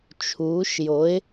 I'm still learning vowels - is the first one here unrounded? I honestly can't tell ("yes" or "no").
no